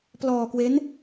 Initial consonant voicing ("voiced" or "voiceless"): voiceless